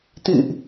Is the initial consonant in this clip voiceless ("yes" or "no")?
yes